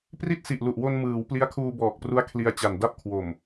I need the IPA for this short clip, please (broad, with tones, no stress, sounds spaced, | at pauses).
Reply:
p r i˥˩ t̚ s i˨˩ ʔ l u˨˩ ʔ w o˧ n m ɯː˩˦ w p l i˦˥ a̯ kʰ uː˧ b ɔː˨˩ k̚ p r u˦˥ a̯ kʰ l i˧ a̯ t͡ɕ a˨˩ n d a˥˩ p̚ kʰ w o˨˩ m